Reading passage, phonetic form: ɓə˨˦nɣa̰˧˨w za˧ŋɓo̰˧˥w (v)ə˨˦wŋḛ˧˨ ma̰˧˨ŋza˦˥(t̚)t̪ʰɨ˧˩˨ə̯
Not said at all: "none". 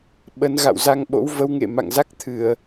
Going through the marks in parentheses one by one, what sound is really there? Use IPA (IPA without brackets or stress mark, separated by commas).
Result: v, k̚